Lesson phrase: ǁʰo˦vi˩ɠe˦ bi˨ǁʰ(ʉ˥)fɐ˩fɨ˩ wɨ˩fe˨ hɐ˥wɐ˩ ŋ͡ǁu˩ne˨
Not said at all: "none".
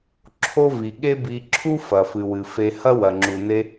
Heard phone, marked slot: u˥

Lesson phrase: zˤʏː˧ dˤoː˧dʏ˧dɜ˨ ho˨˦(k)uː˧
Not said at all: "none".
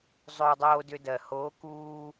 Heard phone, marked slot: k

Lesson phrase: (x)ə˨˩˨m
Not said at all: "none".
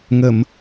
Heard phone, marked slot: ŋ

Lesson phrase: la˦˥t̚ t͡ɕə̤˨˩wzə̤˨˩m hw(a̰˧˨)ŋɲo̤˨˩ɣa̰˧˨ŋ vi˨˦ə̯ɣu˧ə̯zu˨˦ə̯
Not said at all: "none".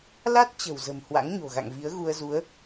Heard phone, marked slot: a̰˧˥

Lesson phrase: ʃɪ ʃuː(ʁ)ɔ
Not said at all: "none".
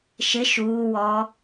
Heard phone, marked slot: w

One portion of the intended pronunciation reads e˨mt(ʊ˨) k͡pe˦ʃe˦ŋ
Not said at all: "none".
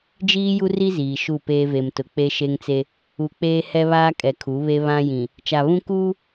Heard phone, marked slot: ʊ˨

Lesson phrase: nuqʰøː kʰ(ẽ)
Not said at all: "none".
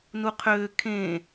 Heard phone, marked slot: ẽ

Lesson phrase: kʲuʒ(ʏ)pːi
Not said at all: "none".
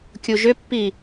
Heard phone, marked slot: ʏ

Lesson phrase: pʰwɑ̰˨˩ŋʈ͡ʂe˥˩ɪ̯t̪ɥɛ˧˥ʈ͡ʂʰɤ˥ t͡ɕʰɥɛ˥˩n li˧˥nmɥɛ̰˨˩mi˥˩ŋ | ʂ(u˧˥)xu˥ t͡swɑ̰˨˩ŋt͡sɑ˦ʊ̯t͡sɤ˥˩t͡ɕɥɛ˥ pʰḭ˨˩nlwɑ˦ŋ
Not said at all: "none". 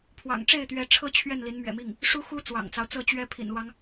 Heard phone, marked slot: u˥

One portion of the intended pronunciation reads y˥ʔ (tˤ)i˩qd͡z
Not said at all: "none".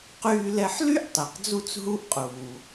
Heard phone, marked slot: tˤ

